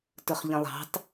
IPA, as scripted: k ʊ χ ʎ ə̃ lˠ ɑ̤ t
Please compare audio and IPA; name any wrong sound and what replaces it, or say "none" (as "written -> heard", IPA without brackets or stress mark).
k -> t